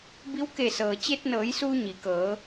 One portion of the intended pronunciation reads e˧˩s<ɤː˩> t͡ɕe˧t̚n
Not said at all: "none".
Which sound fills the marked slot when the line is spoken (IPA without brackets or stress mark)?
ɤː˩